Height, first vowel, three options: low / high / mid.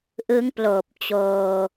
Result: high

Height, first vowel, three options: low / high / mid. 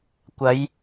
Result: low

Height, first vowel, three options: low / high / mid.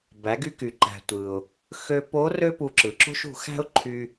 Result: low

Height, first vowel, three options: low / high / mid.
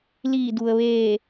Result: high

